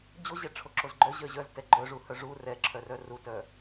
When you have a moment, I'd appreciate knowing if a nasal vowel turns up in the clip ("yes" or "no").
no